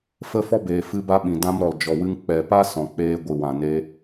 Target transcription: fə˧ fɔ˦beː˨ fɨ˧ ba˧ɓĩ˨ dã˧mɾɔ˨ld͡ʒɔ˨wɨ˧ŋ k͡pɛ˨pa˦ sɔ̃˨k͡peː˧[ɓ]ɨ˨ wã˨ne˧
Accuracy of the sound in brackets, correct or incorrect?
incorrect